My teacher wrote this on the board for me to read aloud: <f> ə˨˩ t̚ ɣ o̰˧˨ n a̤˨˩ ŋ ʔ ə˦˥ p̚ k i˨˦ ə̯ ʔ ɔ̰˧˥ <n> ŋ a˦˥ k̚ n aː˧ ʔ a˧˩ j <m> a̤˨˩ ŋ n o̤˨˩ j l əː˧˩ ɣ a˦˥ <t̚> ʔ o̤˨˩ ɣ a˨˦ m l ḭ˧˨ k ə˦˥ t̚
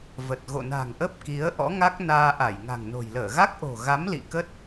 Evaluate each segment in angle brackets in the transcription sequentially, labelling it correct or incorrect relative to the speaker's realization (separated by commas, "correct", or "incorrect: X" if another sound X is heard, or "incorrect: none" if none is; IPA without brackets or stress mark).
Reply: incorrect: v, incorrect: none, incorrect: ŋ, incorrect: k̚